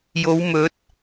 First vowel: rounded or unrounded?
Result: rounded